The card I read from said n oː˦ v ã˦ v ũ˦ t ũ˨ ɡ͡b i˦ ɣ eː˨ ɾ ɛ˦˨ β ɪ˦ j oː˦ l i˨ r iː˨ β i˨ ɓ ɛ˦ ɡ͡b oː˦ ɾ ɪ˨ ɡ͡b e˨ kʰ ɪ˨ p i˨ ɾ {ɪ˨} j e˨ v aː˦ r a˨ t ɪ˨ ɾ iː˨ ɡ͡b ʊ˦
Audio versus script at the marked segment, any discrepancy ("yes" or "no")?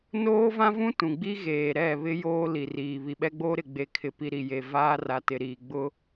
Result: yes